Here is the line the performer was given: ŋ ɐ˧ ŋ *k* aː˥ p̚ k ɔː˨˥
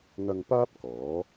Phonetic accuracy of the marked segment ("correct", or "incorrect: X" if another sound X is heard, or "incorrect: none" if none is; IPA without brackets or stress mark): incorrect: p